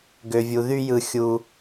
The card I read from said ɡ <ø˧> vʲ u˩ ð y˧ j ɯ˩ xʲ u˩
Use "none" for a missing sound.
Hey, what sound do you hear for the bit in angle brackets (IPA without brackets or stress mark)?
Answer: ø˩